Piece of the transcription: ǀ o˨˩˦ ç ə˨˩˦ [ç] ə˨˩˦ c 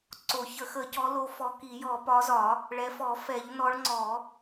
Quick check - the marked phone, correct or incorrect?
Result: incorrect